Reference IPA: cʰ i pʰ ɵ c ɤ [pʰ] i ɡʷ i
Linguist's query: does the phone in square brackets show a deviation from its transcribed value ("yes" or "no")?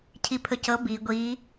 yes